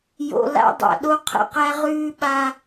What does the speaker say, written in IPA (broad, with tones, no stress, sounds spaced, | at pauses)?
j o̰˨ l a̰˦ dˤ a̰˨ ɗ o˦ qʰ ə̰˨ q æ˦ ʁ ʉː˦ ɓ a˦